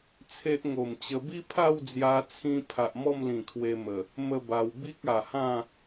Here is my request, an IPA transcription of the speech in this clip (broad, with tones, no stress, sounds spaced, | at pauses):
t͡sʰ e˦ ʔ ŋ o˨˩ m t͡ɕ ə˧ b i˦ pʰ a˥˧ w d͡z j a˧ t͡sʰ ĩ˧ pʰ a˨ ʔ m ɔ˥˧ m l ĩ˨˩ kʰ w e˧ m ə˨˩ | m ə˥˧ b a˧ w b i˦ k̚ a˨˩ h ã˥˧